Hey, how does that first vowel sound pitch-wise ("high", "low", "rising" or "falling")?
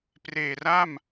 low